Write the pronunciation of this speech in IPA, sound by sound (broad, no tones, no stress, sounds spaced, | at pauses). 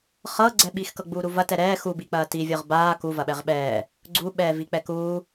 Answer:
χ ɤ ɡ͡ǀ ɛ ɓ i x k ɤ ɡ͡b uː ɾ u v ɐ t ɛ ɾ ɛː x u b i k͡p ɐː t i vʲ ɤ ʁ b aː k u v ɐ ɓ ɛ ʁ ɓ ɛː | ɡ͡ǀ u ɓ ɛː v i k͡p ɛ k uː